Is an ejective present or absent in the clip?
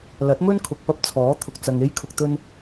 absent